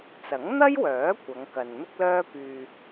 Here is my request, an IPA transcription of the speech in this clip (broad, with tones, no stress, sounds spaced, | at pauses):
t͡s ɐ˨˥ ŋ n̪ ɐ˥ j w œː˨˥ kʷ ɐ˨˧ ŋ k ɐ˨ n n̪ ʊ˥ k̚ l œː˥ p yː˧